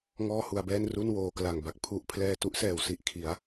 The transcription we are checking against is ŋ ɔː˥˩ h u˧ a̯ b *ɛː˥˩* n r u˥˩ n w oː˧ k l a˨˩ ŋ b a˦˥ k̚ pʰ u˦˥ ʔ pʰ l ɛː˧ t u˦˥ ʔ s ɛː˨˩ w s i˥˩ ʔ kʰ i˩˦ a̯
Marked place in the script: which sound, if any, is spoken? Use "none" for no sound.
ɛː˥˩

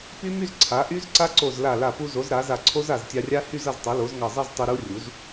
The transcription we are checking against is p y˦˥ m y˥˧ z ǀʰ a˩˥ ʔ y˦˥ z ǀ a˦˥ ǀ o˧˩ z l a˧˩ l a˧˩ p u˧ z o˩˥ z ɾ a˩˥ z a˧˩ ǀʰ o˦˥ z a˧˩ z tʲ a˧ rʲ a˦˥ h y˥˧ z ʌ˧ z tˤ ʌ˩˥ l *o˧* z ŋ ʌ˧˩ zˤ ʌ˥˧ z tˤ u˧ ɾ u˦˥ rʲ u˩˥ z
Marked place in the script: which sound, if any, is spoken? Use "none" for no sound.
o˩˥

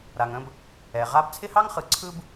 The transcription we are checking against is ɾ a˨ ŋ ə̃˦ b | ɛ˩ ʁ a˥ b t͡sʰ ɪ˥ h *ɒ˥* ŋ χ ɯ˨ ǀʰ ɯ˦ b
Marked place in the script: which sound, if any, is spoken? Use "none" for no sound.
ɑ˥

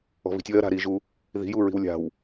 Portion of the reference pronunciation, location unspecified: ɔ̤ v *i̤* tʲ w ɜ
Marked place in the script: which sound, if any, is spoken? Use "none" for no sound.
i̤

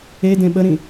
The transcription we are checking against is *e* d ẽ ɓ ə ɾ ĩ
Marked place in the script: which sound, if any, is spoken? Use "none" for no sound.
e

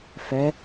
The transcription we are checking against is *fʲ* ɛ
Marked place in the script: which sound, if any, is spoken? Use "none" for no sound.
f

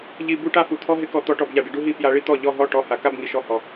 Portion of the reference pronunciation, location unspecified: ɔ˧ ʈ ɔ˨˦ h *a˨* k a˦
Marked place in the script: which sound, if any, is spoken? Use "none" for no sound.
a˨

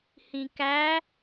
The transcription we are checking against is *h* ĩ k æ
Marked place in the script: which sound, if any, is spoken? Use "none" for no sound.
h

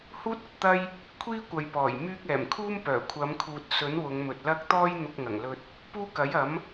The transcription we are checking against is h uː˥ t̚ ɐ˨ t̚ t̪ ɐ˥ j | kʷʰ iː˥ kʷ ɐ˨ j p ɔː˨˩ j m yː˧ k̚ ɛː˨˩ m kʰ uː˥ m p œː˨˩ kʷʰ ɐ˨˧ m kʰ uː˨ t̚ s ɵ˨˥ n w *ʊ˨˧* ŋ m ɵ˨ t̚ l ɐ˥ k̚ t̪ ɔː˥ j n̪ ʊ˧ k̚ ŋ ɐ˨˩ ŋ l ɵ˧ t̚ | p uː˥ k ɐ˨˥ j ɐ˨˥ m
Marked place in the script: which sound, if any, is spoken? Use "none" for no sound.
ʊ˨˧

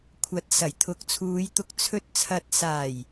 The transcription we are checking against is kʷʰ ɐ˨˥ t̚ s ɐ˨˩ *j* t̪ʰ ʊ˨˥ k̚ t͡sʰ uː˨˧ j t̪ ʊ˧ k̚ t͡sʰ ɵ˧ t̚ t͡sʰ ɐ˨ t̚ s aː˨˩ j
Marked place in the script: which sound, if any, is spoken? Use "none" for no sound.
j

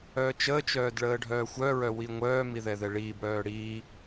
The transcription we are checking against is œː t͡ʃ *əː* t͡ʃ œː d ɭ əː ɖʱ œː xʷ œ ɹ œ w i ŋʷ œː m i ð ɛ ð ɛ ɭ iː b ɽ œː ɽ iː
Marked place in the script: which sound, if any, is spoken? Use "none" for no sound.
əː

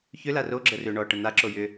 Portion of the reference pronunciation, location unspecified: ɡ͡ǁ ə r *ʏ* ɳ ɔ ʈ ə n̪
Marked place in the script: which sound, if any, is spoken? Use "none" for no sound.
ʏ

